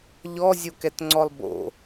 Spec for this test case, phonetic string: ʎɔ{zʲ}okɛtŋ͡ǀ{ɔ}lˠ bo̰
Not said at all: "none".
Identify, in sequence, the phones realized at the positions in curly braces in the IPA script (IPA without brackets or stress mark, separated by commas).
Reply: zʲ, ɔ